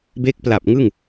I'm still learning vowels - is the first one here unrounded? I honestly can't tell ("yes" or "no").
yes